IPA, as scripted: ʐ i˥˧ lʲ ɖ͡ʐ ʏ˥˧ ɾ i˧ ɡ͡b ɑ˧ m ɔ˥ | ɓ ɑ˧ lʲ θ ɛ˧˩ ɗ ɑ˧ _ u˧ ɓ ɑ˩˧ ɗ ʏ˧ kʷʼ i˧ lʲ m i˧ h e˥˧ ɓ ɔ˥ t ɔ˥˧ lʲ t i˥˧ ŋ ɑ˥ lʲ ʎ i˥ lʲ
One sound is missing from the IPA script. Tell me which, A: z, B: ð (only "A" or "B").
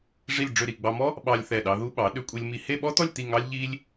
B